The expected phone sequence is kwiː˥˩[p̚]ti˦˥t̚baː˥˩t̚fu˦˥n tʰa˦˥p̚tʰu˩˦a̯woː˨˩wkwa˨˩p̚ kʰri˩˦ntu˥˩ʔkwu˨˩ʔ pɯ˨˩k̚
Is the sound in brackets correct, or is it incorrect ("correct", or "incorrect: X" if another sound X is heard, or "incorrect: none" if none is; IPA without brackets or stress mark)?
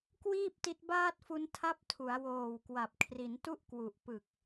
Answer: correct